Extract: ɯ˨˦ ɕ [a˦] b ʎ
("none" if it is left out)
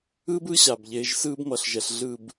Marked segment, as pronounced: a˨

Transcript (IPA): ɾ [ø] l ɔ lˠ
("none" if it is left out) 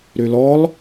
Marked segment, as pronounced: ø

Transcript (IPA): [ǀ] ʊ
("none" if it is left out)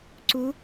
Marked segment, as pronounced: ǀ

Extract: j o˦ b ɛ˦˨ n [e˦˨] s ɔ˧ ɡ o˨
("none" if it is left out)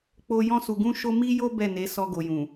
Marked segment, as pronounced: e˨˦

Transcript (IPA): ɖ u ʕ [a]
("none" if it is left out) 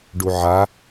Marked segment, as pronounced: a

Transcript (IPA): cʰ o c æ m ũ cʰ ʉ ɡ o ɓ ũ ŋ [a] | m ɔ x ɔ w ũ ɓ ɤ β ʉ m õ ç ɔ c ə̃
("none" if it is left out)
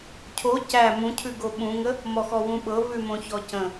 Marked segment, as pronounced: ə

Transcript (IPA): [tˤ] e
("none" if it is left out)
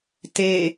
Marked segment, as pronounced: t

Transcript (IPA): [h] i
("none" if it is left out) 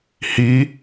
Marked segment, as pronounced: h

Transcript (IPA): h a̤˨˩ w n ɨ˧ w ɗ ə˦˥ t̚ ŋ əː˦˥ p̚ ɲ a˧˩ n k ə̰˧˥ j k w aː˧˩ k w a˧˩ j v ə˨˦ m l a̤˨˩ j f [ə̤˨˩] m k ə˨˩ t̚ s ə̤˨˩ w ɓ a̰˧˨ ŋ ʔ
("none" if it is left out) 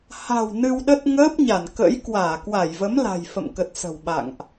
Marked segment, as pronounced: ə̰˧˨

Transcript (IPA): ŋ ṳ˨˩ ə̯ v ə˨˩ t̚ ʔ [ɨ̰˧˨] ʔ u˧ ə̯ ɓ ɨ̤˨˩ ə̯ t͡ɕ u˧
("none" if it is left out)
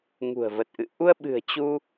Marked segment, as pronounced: ɨ̰˧˨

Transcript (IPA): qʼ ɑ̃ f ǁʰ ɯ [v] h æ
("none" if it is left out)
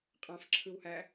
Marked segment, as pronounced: w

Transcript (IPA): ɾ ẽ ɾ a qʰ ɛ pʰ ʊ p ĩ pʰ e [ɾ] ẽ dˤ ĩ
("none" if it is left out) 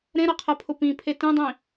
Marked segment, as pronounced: t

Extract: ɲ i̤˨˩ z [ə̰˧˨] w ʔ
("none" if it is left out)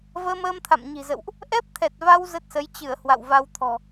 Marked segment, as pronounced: ə̰˧˨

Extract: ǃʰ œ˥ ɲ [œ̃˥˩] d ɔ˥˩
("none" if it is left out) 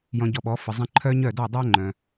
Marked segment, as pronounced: œ˥˩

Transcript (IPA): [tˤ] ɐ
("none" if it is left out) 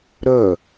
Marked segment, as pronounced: ɾ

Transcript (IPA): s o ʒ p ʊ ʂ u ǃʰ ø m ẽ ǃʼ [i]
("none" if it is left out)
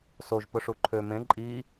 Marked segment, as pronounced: i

